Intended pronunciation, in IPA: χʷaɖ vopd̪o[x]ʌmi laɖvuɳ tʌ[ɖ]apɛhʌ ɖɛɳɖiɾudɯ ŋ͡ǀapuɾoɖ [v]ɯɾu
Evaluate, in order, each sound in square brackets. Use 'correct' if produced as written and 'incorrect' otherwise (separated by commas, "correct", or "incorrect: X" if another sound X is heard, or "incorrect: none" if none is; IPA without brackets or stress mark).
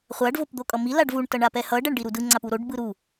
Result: incorrect: kʼ, incorrect: ɳ, incorrect: b